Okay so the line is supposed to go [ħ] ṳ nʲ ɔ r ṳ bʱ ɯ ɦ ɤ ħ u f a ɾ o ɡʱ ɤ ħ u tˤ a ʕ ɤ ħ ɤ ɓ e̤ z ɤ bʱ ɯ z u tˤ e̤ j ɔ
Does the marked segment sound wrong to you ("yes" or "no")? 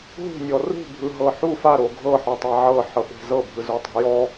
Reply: yes